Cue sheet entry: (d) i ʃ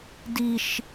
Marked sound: correct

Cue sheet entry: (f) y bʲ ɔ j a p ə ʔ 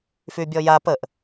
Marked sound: correct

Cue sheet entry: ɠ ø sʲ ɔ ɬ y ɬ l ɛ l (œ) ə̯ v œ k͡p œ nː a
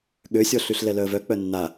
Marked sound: correct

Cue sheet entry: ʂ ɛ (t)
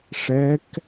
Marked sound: incorrect: k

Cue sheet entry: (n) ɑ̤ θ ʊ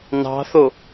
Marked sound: correct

